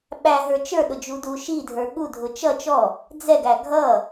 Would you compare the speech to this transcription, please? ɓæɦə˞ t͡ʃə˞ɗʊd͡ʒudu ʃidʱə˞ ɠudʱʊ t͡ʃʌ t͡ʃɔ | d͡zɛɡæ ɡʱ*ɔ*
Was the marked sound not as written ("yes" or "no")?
yes